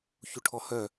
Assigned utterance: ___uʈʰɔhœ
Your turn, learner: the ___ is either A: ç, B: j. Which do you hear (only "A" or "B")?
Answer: A